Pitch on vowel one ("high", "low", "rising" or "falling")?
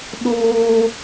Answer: high